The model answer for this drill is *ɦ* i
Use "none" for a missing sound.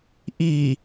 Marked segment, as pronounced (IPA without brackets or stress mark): ʔ